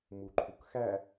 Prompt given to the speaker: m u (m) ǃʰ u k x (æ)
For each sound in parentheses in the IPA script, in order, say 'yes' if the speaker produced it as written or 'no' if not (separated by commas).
no, yes